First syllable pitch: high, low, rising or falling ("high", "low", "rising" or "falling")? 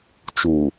low